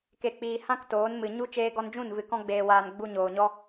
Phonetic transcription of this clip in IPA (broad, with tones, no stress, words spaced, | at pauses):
ke˨k͡piː˨ hã˦k toː˨˦nmɨ˨ ɲu˧ t͡ʃeː˧ɡɔ˧nd͡ʒũ˦˨n vɨ˨kɔ̃˧ɡ͡beː˨waː˨n ɡ͡bu˧ɲoː˨ɲɔ˦